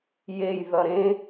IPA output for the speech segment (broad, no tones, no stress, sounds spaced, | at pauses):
j e j ð ʌ ɾ ẽ